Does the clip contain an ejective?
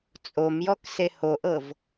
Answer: yes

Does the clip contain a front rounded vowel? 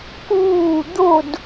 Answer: no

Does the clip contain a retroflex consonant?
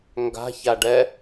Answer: yes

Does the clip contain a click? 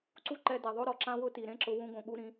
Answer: yes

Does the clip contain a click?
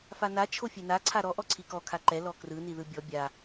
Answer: yes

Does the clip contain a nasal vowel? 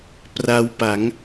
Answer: no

